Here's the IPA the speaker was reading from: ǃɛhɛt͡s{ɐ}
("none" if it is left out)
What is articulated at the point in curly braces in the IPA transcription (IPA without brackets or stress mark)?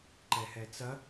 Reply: ɐ